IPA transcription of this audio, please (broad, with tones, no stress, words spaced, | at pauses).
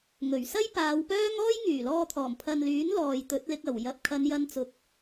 ŋɵ˨˩ɥsɐ˥jpaː˨˧w pœː˥ŋ ɔː˥jŋyː˨˩lɔː˧t̪ʰɔː˨˩m pʰɐ˨nlyː˨˥n lɔː˨jt̪ɵ˨˥t̚lɪ˧k̚ɐ˨˩w jɐ˨p̚kʰɐ˨˧n jɐ˧nt͡sʊ˨˥k̚